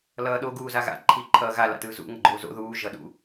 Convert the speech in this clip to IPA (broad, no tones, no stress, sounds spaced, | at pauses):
l ʌː ɗ o ɡ uː z a ɣ a̰ ǃʰ iː ǃʰ ʌː ɣ a l a̰ t ɯː z ṵ ŋ ʌ ɡ͡ǃ oː z o̰ ð uː ʒ ʌ ɗ ṵ